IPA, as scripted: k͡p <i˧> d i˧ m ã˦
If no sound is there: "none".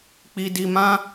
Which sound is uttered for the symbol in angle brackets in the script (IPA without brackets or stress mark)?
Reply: i˧